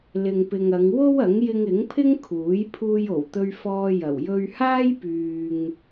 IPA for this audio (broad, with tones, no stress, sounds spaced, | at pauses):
l ɪ˨ ŋ p ɪ˨ ŋ ɐ˨˧ ŋ w o˥ w ɐ˨˥ ŋ j ɪ˧ ŋ ɪ˨˥ ŋ pʰ ɪ˥ ŋ kʰ uː˨˥ j pʰ uː˧ j o˨˩ w t̪ ɵ˧ ɥ f ɔː˧ j ɐ˨˩ w j ɵ˧ ɥ h aː˥ j p yː˨ ŋ